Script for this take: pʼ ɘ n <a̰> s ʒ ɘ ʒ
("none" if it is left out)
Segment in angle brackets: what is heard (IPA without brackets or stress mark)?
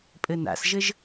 a̰